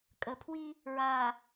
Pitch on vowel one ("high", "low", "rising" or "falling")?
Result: low